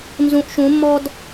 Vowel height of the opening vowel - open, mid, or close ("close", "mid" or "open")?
close